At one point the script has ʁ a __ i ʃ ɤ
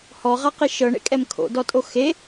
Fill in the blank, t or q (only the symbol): q